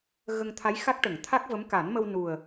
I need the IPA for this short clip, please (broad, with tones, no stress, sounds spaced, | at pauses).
ɣ ə˧ ŋ t̪ʰ a˧˥ j x a˦˥ k̚ ʈ ə˨˩˨ ŋ t̪ʰ a˦˥ k̚ v ə˧˥ m k a˨˩˦ n m ə˧ w n u˨˩ ə̯